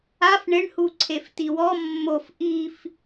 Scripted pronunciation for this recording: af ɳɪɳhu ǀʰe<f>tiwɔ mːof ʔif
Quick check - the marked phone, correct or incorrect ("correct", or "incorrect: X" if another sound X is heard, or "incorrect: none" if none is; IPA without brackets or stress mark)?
correct